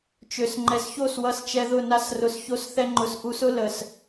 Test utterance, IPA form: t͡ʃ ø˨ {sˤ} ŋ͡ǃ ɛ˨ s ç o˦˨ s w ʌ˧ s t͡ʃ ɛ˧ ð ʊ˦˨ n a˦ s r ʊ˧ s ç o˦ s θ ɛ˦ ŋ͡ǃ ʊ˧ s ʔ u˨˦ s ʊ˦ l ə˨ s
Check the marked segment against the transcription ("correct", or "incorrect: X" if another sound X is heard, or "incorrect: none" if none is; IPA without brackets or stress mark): incorrect: s